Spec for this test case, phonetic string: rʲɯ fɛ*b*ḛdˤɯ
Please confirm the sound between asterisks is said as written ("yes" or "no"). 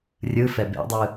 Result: yes